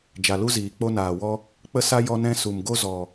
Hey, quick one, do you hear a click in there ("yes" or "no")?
no